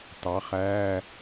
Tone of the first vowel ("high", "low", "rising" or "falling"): rising